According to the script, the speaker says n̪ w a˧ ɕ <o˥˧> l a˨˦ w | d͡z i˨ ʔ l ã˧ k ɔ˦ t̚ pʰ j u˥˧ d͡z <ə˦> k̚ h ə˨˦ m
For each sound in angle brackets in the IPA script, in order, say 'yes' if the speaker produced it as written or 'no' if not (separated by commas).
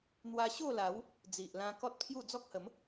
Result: yes, no